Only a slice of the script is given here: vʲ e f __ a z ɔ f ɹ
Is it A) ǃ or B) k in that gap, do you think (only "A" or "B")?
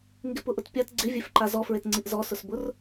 A